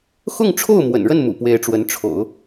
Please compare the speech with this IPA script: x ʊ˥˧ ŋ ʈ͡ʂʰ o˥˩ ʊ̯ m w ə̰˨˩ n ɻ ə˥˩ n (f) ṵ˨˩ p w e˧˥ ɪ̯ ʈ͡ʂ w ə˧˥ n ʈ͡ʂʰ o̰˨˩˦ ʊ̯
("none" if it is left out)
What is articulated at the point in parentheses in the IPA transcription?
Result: m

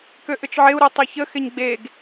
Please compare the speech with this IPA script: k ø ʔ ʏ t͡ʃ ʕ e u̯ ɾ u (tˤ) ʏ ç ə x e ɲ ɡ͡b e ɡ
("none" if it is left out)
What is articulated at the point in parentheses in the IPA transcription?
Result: tˤ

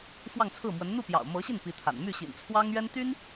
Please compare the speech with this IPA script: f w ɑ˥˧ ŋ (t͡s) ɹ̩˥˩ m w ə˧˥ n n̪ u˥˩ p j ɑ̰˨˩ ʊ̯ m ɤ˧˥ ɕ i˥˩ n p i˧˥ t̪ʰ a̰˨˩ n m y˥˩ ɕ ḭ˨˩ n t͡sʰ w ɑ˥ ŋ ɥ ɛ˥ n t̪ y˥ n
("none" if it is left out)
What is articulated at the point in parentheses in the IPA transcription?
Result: t͡sʰ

